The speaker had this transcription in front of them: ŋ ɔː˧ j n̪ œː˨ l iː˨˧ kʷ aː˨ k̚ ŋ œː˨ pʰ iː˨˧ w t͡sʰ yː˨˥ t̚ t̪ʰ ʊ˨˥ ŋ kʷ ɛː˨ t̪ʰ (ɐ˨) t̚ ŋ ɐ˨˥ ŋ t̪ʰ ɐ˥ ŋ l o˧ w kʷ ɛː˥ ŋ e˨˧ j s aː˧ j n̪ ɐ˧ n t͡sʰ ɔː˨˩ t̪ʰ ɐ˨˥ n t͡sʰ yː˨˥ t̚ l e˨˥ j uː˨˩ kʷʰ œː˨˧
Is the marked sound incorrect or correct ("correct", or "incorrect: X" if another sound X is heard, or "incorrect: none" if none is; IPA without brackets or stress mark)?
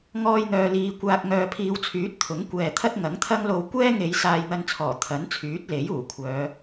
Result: incorrect: ɐ˥